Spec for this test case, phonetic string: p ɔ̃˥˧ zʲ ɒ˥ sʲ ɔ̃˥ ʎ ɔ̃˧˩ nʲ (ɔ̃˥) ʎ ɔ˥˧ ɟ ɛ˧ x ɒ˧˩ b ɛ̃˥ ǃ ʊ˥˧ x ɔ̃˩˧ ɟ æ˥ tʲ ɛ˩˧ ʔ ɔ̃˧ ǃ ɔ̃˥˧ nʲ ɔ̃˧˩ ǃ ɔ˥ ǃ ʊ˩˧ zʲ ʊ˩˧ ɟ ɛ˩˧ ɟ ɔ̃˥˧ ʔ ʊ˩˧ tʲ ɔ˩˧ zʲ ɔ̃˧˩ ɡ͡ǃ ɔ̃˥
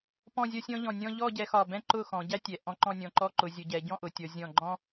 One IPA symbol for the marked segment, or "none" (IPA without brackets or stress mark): ɔ̃˥